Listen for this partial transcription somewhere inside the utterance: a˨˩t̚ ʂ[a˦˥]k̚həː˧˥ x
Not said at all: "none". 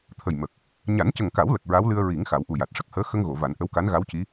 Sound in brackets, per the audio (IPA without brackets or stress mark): ə˦˥